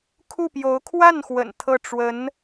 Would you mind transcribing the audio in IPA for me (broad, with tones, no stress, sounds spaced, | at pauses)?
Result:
kʰ u˥˩ p j o˧˥ ʊ̯ kʰ w a˥˩ n x w ə̰˨˩ n t̪ʰ ɤ˥˩ ʈ͡ʂ w ə˧˥ n